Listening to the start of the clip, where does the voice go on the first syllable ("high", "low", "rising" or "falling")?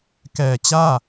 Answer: low